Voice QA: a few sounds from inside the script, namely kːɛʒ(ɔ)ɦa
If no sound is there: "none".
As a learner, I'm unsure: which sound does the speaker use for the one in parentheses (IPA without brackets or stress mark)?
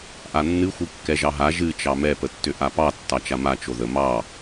ɑ